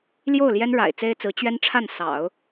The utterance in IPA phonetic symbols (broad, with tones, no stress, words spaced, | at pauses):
ljo˥˩ʊ̯ ljɛ˥nɻa̰˨˩ɪ̯t͡se˥ɪ̯t͡sɹ̩˧˥ t͡ɕɥɛ˥nʈ͡ʂʰa˥˩n sɑ̰˨˩˦ʊ̯